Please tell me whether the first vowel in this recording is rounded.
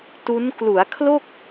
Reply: yes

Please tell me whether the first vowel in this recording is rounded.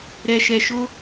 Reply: no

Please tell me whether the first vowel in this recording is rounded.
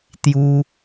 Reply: yes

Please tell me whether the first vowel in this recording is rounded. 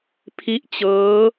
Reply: no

